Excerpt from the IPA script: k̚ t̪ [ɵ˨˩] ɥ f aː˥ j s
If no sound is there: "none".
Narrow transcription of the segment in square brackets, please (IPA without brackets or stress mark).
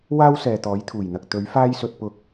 ɵ˨˥